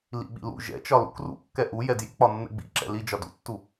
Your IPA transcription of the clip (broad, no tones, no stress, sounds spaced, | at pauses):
l ḭ ɓ ḭ l ṵ ʒ ɛ̰ t͡ʃ ɒ l ṵ k r ṵ kː ɛ ʔ u j ɛ d j ḭ k͡p ɒ nː ɛ̰ ɡ͡b ḭ ǁ ɛ̰ l i d͡ʒ ɒ d ṵ tː u